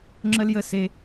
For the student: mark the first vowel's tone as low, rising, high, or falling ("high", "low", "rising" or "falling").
high